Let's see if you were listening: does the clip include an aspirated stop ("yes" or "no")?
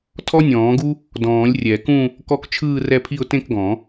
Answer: yes